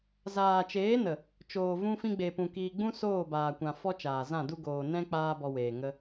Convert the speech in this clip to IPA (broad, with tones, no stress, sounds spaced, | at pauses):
z aː˨ t͡ʃ eː˨˦ n ə˨ | t͡ʃ oː˨ v ũ˧ f ĩ˧ ɡ͡b e˨ p ũ˨ k iː˨ ɡ͡b ũ˦ s oː˦˨ b aː˨ kʷ ã˨ f ɔ˦ t͡ʃ aː˨ z ã˦˨ d u˦ ɡ oː˨ n ɛ̃˦ k͡p aː˦ b ɔ˧ w eː˨ ŋ ə˦